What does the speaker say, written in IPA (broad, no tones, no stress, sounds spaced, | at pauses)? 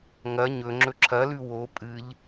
ŋ ɐ ɲ ɵ ŋ͡ǁ ɵ ǁʰ ɐ l ʉ w o pʼ ɨ ʎ